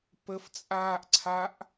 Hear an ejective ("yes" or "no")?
yes